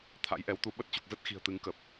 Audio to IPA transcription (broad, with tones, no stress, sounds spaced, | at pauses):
t̪ʰ a̰˧˥ j ʔ ɛ˨˦ w t̪ u˧ ɓ ə˦˥ t̚ t͡ɕ u˨˩ k̚ z ə˦˥ t̚ x i̤˨˩ ə̯ t̪ ɨ˨˦ ŋ k ə˨˩ p̚